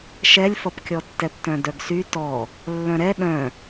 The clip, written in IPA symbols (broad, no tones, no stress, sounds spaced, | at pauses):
ʃ ɛ lʲ f ʌ p kʲ ɔ tː ɛ p t œ̃ d œ ɡ s y t ɔ | lː œ̃ ɾ ɛ ɗ œ̃